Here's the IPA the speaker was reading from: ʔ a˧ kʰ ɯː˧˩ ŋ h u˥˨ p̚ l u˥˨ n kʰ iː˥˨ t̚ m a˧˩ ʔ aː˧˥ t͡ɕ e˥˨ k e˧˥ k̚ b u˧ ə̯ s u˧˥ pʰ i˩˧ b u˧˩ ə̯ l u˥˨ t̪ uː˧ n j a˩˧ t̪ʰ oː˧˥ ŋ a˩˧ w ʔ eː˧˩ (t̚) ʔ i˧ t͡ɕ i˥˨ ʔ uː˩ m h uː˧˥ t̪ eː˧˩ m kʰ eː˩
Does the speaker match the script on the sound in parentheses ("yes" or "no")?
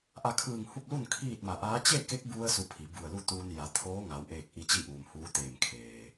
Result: no